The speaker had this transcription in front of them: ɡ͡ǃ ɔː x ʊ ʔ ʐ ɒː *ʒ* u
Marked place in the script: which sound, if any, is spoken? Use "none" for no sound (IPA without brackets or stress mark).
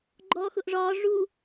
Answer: ʐ